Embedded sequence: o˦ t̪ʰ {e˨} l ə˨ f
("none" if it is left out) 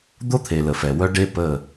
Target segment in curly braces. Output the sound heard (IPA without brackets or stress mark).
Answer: e˨